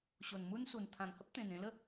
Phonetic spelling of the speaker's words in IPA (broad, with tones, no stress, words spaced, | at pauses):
ɕo˨˩nmu˦nsu˨˩n t̪ʰã˨˩ŋhə˦p̚t̪ẽ˨˩n ẽ˧lə˥˧